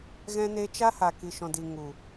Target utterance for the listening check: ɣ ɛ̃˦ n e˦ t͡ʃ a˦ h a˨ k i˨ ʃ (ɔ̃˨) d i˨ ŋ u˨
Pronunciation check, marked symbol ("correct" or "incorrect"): correct